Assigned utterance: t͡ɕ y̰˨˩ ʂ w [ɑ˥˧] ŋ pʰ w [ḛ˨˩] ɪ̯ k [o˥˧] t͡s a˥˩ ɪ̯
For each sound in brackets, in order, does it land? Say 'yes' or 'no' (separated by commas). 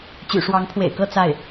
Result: no, yes, no